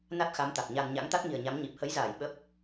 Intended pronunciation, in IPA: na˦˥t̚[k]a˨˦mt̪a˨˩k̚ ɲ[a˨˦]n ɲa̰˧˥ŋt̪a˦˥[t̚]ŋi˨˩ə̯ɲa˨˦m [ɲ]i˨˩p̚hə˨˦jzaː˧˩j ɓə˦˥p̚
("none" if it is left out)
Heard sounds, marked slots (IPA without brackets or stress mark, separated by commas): x, a˧, t̚, ɲ